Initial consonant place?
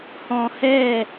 glottal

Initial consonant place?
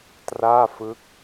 alveolar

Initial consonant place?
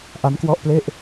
glottal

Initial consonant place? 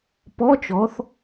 labial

